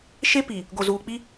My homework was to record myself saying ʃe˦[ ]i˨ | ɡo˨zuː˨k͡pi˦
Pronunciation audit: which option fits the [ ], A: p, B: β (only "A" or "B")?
A